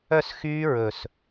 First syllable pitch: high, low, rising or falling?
falling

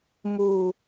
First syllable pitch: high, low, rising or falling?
falling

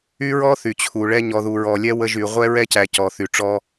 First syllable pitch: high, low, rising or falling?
high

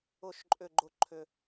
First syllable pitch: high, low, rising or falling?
falling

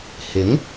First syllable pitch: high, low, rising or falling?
rising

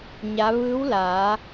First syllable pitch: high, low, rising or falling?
rising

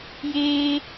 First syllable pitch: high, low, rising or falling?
high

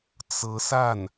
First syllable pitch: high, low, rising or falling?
rising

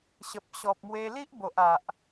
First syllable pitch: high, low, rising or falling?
low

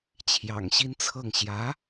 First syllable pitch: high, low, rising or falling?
low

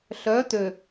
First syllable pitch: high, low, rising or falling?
rising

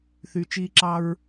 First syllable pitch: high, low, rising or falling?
low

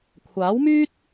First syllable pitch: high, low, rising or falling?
rising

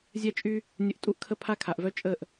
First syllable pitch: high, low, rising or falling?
high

